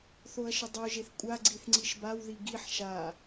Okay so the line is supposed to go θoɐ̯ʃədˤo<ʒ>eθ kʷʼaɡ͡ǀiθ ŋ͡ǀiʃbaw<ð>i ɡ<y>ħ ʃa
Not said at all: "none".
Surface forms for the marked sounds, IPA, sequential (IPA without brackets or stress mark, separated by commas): ʒ, ð, i